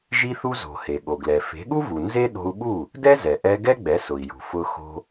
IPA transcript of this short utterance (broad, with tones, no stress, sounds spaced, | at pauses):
ʒ i˧ θ u˧ z o̤˩ h e˩ ɠ o˩ ɡ l ɛ˩ f e̤˩˥ ɠ u˥ v u˩ n z e˥ ɗ o̤˧ u̯ ɓ u˥˩ | d ɛ˥ z ɛ˩ ʔ ɛ˧ ɡ ɛ˥ ɡ͡b ɛ˩˥ s ʊ˩ i̯ j ṳ˩ f ʊ˧ x o̤˧